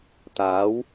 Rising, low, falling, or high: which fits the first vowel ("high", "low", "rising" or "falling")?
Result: rising